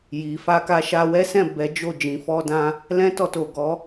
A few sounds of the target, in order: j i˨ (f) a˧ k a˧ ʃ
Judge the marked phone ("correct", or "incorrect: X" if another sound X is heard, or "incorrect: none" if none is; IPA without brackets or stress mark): correct